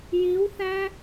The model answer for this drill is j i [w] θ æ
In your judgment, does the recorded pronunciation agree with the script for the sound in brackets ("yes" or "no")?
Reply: yes